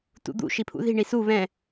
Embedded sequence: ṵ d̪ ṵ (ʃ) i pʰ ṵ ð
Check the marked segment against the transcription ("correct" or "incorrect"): correct